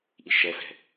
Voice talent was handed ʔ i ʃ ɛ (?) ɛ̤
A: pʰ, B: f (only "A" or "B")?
B